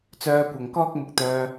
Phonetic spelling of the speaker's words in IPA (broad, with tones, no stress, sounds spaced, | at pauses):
t͡s œː˧ kʷ ɐ˨ ŋ k ɔː˥ k̚ m ʊ˧ k̚ t̪ œː˧